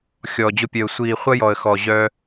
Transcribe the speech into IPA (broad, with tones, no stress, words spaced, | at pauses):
xʲɔ˨d͡ʑʊ˧pʲœ˨ʊ̯ sʷiː˨ χʷɐ˦jɔ˨ə̯ xɔ˨ ʑœ˧